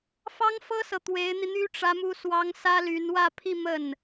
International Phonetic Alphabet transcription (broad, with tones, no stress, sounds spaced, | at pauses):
f ɑ˥ ŋ f ɤ˥ s ɤ˨ t̪ w e˧˥ ɪ̯ n̪ i˧ n̪ y˥ ʈ͡ʂ ä˥ m u˥ s w ɑ˥ ŋ s ä˥ l y˧˥ n w ä˥˧ pʰ i˥˧ m ə˥˩ n